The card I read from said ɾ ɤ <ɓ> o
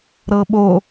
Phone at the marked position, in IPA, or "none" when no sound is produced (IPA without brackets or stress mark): ɓ